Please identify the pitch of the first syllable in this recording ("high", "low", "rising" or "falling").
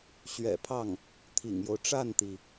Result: low